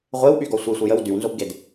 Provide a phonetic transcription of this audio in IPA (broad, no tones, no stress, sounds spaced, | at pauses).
ʁʷ e w ɓ y ɡ ɔ sʷ i sʷ ə j ə w d y w n z o b ɡ e d